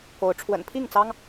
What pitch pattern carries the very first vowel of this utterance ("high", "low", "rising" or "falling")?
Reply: rising